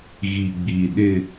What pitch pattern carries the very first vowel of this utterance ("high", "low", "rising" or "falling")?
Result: low